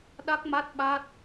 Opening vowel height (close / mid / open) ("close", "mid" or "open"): open